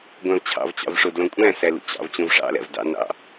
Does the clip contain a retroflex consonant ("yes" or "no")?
yes